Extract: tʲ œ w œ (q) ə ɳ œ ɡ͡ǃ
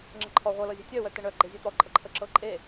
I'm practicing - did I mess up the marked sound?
yes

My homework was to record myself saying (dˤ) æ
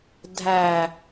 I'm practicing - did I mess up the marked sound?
yes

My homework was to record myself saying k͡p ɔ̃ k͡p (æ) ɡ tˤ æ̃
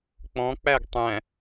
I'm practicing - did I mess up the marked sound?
no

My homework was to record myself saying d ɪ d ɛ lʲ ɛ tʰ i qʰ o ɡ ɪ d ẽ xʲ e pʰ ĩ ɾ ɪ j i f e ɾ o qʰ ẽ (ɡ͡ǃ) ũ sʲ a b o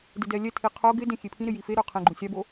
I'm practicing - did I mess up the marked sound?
no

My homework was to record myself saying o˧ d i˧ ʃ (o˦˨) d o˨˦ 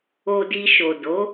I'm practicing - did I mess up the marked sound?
yes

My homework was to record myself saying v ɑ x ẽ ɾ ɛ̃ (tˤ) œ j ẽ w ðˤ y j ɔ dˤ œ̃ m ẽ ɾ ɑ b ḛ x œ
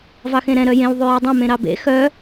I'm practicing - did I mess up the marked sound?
yes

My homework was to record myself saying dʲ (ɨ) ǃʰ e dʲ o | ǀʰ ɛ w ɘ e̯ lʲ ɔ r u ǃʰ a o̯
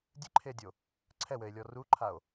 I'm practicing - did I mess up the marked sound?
no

